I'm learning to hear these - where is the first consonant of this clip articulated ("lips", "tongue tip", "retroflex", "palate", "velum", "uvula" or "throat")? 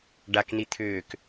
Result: retroflex